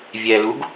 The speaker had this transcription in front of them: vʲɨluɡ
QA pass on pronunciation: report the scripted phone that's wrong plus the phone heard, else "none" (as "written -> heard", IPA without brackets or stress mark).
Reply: ɨ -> ɛ